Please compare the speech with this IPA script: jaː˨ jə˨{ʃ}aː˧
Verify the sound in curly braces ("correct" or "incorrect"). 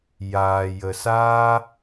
incorrect